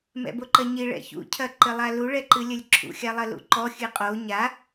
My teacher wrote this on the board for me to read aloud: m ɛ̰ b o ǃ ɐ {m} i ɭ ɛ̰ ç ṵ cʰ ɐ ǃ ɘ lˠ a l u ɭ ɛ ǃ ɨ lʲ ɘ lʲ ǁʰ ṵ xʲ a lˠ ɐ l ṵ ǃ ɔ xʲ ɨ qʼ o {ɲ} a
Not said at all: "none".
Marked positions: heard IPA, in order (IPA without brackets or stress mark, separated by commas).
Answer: ɲ, ɲ